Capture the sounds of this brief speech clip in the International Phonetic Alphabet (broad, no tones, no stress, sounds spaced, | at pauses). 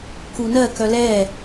k u n ɜ k œ l ɛ